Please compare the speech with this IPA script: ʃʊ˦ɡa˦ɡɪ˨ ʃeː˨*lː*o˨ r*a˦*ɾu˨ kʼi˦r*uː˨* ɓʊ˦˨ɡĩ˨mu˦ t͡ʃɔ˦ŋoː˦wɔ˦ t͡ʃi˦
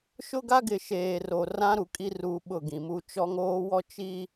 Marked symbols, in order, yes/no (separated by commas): no, no, yes